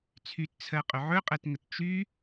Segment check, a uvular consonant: present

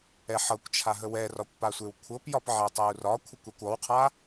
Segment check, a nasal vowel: absent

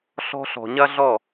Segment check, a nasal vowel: absent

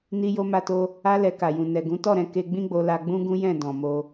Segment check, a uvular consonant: absent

